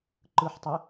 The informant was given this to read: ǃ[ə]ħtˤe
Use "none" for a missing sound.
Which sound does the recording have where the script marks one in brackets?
ɯ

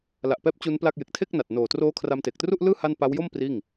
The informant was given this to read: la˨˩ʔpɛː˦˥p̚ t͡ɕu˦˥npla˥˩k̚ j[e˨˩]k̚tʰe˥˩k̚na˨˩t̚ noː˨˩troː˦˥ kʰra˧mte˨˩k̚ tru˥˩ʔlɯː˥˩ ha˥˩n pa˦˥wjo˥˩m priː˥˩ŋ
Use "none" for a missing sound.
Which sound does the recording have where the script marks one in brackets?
e˨˩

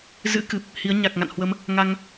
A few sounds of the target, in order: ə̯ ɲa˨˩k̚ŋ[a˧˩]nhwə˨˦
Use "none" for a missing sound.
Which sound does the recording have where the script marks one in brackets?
a̰˧˨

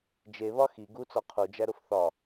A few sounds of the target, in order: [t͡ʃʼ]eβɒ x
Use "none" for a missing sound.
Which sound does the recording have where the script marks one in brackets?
d͡ʒ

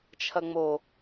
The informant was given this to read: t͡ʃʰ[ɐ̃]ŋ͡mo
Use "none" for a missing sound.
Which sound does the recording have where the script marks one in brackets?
ɐ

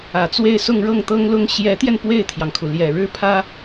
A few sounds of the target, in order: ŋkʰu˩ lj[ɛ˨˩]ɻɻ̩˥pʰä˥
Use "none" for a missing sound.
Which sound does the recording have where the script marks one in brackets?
ɛ˨˩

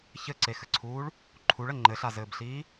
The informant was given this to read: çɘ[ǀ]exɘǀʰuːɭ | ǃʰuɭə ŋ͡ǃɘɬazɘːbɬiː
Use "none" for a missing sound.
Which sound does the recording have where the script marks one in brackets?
ǀ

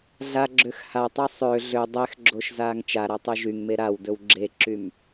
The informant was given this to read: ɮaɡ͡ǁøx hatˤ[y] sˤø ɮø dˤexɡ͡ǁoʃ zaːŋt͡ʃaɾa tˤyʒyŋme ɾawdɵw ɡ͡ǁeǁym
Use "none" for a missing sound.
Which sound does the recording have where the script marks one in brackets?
y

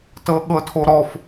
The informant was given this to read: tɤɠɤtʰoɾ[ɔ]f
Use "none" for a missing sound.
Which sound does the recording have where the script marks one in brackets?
ɔ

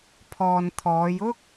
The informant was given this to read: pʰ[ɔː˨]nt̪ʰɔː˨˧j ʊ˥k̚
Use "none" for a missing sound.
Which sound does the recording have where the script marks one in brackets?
ɔː˨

